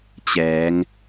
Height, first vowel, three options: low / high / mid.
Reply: mid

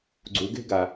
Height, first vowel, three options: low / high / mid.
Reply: high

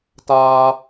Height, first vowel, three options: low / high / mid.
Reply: low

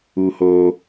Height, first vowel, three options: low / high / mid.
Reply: high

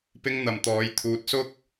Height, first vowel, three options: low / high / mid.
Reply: high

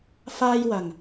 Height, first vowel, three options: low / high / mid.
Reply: low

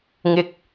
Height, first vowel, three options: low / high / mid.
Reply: high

